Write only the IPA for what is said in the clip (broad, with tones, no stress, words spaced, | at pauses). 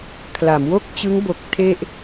kʰla˩˦mwo˥˩k̚t͡ɕɯ˦˥ŋ bo˨˩k̚ tʰe˥˩ʔ